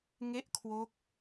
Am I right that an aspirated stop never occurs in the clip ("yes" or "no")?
no